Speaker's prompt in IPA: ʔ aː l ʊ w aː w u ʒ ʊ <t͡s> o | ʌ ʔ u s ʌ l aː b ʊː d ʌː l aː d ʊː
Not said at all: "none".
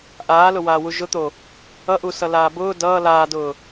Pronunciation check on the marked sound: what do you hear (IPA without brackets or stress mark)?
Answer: t̪